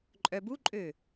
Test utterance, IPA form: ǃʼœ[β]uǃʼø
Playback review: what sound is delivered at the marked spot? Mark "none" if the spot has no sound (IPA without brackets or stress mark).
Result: b